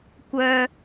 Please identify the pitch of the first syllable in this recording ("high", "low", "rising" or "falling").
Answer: low